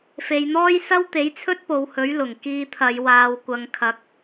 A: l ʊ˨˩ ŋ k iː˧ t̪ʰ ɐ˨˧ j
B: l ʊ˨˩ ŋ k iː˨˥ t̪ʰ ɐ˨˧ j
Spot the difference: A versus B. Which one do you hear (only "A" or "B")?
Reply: A